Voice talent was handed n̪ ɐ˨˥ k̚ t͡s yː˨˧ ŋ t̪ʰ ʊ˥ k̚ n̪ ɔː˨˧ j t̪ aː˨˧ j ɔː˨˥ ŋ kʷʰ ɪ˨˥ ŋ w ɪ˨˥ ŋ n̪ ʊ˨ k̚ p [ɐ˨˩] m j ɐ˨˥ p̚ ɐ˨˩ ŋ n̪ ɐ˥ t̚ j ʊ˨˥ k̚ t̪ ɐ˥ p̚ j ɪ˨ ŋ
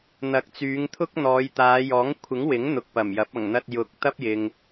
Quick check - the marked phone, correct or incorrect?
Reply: correct